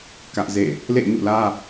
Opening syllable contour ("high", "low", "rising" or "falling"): high